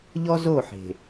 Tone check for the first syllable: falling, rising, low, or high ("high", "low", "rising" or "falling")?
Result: high